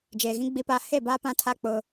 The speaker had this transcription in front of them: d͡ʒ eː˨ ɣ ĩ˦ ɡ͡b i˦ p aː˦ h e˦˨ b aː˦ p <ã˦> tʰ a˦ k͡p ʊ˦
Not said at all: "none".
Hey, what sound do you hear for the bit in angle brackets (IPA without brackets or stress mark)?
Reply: ã˦